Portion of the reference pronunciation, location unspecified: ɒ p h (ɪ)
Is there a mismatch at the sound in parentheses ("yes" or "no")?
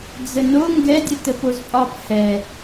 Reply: yes